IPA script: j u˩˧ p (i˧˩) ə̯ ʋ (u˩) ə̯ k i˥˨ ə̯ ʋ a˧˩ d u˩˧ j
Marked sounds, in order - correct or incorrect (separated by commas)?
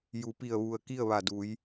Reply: correct, correct